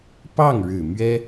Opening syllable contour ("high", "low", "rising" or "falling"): falling